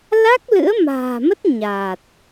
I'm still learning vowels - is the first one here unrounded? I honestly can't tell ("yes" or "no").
yes